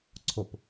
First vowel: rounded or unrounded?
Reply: rounded